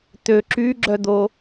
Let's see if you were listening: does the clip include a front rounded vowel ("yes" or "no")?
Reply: yes